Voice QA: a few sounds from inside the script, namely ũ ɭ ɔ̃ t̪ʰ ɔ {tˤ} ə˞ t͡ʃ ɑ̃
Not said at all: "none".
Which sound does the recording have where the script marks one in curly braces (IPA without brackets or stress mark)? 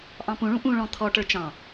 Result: ʈ